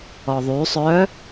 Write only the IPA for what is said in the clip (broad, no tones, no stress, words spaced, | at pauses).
ɔðˤy sˤœ